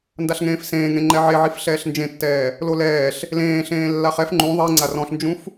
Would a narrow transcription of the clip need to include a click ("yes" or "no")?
yes